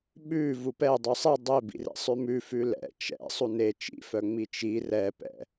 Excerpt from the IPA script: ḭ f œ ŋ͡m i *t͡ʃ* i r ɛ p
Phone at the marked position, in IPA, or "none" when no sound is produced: t͡ʃ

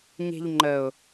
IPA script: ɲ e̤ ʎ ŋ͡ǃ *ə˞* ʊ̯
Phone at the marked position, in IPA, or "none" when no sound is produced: ə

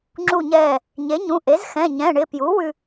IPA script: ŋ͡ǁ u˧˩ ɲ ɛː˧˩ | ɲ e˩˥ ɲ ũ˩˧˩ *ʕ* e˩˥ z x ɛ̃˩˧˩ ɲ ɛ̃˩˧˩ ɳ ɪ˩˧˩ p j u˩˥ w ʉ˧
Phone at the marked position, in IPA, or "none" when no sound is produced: ʔ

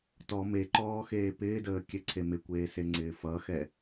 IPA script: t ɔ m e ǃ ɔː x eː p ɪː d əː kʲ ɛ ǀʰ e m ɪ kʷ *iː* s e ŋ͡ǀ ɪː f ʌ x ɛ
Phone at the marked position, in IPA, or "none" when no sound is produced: eː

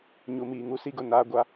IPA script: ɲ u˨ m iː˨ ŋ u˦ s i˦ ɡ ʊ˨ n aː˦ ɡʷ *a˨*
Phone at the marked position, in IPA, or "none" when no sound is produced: a˦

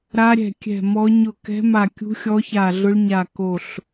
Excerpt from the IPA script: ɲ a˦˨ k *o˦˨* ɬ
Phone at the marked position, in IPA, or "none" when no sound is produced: o˦˨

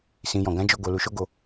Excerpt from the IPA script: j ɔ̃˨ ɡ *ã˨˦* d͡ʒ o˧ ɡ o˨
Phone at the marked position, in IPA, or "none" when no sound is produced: ã˨˦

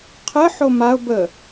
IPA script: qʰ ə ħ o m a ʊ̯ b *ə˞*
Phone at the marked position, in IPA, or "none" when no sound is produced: ə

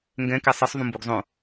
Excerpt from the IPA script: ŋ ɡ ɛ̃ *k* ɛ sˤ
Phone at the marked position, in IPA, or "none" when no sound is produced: k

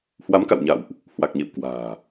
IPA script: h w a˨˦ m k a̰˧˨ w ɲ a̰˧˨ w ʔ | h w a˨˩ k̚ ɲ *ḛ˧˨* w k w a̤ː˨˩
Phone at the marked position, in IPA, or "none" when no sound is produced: ḛ˧˨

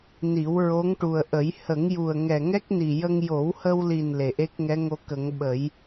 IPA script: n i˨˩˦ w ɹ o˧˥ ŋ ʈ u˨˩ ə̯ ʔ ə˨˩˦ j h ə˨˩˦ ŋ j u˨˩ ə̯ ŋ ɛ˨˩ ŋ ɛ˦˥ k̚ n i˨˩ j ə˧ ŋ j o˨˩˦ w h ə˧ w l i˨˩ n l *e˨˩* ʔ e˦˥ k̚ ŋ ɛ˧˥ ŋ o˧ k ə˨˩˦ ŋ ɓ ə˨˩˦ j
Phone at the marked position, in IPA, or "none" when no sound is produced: e˨˩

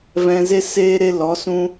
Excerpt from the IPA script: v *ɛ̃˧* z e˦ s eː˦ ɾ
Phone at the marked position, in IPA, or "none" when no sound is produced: ɛ̃˧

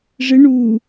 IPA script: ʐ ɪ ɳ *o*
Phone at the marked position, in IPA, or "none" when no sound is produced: u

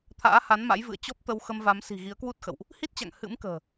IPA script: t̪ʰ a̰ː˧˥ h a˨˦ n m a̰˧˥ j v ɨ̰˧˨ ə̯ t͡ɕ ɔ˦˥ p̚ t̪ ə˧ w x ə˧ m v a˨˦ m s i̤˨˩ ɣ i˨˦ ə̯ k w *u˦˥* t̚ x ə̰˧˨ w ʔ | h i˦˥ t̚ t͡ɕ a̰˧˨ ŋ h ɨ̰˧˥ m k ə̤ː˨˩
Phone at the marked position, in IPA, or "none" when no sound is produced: u˦˥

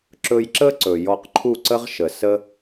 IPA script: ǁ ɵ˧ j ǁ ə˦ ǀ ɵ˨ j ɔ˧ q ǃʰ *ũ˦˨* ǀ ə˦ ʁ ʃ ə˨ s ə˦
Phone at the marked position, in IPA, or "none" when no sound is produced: u˦˨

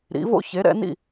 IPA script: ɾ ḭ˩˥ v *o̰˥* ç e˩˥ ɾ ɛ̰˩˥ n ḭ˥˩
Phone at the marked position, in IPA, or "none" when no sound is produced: o̰˥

